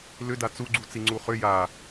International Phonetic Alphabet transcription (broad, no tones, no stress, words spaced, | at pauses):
lʏda t͡suɡ͡ǀut͡si ŋ͡ǀuχʏ ja